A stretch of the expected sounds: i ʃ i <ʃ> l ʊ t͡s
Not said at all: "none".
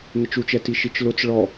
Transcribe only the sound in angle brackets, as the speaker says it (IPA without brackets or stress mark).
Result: t͡ʃ